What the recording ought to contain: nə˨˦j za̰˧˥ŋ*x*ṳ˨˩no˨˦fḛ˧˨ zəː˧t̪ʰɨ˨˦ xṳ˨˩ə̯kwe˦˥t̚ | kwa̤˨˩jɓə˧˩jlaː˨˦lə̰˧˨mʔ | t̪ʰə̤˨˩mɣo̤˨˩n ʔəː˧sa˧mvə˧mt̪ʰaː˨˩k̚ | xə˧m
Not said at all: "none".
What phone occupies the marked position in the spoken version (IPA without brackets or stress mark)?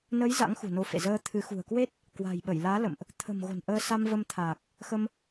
x